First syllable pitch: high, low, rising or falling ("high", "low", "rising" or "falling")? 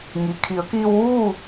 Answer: low